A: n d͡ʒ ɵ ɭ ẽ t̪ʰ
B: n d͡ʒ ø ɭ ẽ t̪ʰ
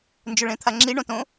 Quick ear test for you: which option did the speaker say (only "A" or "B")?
A